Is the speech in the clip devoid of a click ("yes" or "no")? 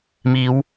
yes